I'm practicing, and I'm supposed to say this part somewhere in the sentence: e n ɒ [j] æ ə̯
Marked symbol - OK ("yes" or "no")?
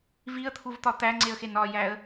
yes